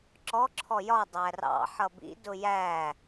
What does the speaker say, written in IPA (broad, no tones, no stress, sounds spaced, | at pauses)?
ǁ ɔ ǁʰ ɔ j ɒ dˤ æ r ɑ̰ ħ ʌ b ḭ d ʊ j æ